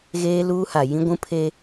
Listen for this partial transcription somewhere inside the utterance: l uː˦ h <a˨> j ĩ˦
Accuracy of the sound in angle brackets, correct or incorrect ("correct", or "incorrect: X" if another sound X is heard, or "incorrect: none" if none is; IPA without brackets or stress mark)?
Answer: correct